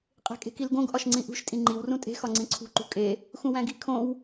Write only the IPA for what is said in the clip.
qʼ e̤ kʼ e̤ k i l ɡ õ ɡ ʔ ɒ ʃ ŋ͡ǀ ĩ ʔ ṳ ʃ tʼ ĩ ŋ͡ǃ i w r ũ tʼ e̤ x ɒ ŋ͡ǀ ĩ ǀʰ ṳ ǃ ṳ kʼ e | x ũ w æ̃ ɡ i kʰ õ w

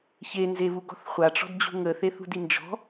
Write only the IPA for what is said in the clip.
ç e n z e β u ɡ ɔ̤ θ χʷ a ʈ͡ʂ ɔ̤ d d͡ʑ ṳ ŋ ə θ e θ ṳ d i n d͡ʒ ɔ̤

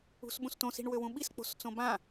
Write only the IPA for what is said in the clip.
ṳ s ɓ ũ s t õ s i̤ ɳ w ø w ũ ɓ i s k͡p o̤ s t͡s õ b ã

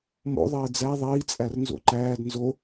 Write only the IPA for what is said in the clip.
m o̰ ðˤ eː d͡z æ ðˤ iː t͡sʼ æ r n z o̰ ǃ æː d n z o

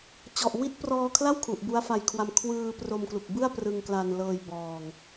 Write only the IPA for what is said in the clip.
t͡ɕ ɔ˨˩ ʔ w i˦˥ t̚ p r ɔː˧ kʰ l a˥˩ w kʰ u˨˩ ʔ b u˦˥ a̯ f a˧ j kʰ w a˧ m kʰ w ɯː˧ p r o˧ m k l u˨˩ k̚ b ɯ˥˩ a̯ p r ɯ˧ ŋ k l a˧ n l ɤː˧ j b ɔː˧ ŋ

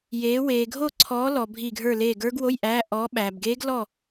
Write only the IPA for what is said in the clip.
j eː˨˦ w eː˨ ɡʱ o˦˨ ǀʰ ɔː˨˦ l ɔ˨ bʱ i˦˨ ɡʱ ə˞˦˨ l eː˦˨ ɡ ə˞˦˥ ɡ w o˧˥˧ j ʔ æ˧˥˧ ʔ ɔː˨˦ ɓ æ˨ b ɡ eː˦˥ ɡ l ɔ˦˨

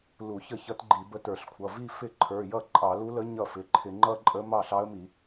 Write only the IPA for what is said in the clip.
l u˧˩˧ ç ə˥˩ ç ʌ˧˥ t ɡ͡ǃ i˧˩˧ b ə˧˥ t ə˞˧˩˧ ɬ kʷʰ ʌ˩˧˩ v i˥˧ f ɪ˥˩ ǃʰ ə˞˩˧˩ j ʌ˥˩ ǃʼ ɑ˧˩˧ l u˧˥ l ə˧˥ ɲ ʌ˥˩ f ɪ˩˧˩ ǃʰ ɪ˧˩˧ ŋ͡ǃ ʌ˥˧ ǃʼ ə˧˥ m ɑ˥˩ ɬ ɑ˧˥ ə̯ m i˧˩˧

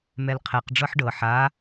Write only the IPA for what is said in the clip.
m ɛ l qʰ ɛ q ɖ͡ʐ ɤ ħ ɖ ɤ ħ a

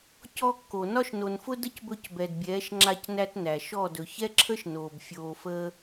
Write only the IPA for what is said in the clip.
c ɔ˧ kː o˨ n ɒ˧ ʃ n o˨ n f ʊ˧ d ə˦ c b ɵ˧ c b ɛ˨ d bʲ ɛː˨˦ ʃ ŋ͡ǁ a˧ c n æ˧ t n æ˨ ʃ ɔ˦˨ d ɵ˨ ç ɛ˦ ǁʰ ə˦ ʃ n oː˨ b fʲ oː˨ f əː˧

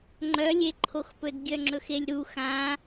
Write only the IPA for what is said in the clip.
ŋ͡ǃ œ lʲ e ǃʰ o x p ɵ d ɡʲ œ ŋ͡ǁ ɵ x e lʲ ɾ u x ã

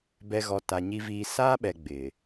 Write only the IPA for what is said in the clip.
b ɛ˨ ɣ ɔ˨ t a˨ ɲ i˨ v iː˨ s aː˦ ɓ ɛ˨ ɡ͡b ɪ˨

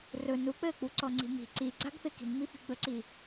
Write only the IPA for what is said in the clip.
r ɵ n u k͡p ɘː k͡p u ǀ ɔ ŋ͡ǀ i̤ m i̤ ǀ i ɡ͡ǀ a ɡ f e k i̤ m ŋ͡m i f i̤ ɡ͡b ɵ ǀ i

